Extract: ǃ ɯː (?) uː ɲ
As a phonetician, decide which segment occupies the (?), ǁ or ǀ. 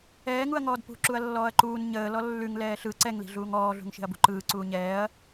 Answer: ǀ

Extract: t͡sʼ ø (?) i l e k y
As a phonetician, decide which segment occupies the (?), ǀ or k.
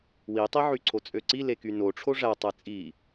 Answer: ǀ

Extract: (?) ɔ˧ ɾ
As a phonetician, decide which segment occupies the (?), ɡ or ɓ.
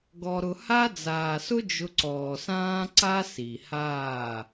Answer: ɡ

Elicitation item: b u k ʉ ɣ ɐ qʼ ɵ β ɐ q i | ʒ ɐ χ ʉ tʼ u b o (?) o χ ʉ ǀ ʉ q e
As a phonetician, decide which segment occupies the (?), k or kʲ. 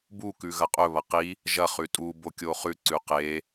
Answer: kʲ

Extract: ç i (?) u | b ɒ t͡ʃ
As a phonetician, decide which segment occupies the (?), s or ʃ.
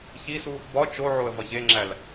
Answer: s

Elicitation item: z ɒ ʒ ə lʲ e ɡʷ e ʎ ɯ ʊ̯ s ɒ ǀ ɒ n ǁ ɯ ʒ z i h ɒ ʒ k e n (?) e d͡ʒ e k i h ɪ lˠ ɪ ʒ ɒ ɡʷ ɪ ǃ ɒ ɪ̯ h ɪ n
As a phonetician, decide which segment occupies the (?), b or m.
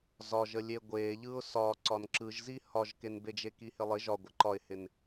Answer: b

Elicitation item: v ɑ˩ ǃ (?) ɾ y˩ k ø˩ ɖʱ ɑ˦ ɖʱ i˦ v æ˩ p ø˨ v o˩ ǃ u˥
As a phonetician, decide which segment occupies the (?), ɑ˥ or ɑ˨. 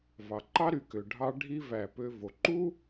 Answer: ɑ˥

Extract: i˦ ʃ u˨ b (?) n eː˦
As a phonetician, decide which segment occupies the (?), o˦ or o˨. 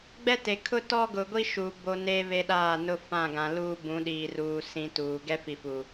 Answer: o˦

